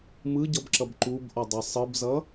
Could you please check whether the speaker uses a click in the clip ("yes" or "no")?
yes